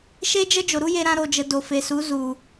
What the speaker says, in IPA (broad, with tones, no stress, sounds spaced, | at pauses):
ʃ e˦ d͡ʒ ə˦ d͡ʒ o˨ ɾ u˦ j e˧ ɾ ã˧ ɾ o˨ d͡ʒ ə˨ d o˨ f e˨ s u˨˦ z u˨